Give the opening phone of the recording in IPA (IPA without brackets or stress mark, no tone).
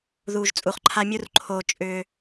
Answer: ð